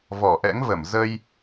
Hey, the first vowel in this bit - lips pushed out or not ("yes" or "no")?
yes